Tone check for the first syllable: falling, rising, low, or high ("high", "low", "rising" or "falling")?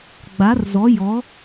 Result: rising